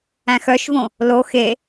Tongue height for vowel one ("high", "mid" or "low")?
low